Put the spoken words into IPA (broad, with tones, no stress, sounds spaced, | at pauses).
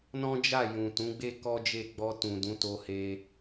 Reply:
n ɔ̃˦ d͡ʒ a˦˨ j ũ˨ t ũ˨˦ ɡ͡b e˦ k ɔ˦ d͡ʒ e˦˨ ɡ͡b ɔ˧ t ũ˨ d ũ˨˦ t o˦ h e˦